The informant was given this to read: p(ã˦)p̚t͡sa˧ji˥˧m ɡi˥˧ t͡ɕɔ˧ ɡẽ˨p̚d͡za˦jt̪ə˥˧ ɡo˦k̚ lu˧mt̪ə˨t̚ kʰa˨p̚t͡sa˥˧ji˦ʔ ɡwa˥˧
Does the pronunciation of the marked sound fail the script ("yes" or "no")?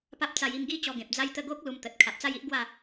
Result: yes